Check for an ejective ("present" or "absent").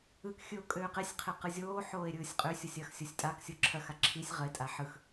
present